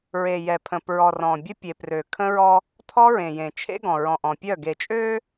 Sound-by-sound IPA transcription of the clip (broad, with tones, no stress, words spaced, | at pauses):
ɹe˨jɛ˨pʰə̃˨ pɹɔ˨rɔ̃˨bʲə˦ pʲe˨prø˨kʰə̃˦ɹɔ˦ | tʰɔ˦ɹẽ˨jẽ˨t͡ʃʰḛ˦ ɡɔ̃˨ɹɔ̃˨ʔɔ̃˨pʲœ˦˨ ɡe˨t͡ʃʼø˦